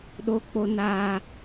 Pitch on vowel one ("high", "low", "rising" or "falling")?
low